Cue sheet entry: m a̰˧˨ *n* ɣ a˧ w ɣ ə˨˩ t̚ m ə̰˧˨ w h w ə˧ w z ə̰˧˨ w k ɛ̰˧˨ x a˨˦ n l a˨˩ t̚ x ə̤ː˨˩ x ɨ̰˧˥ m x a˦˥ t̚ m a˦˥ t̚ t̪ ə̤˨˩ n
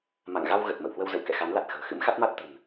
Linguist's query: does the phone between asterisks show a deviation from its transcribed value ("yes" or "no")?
yes